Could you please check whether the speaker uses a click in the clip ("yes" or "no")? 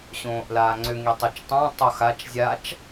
yes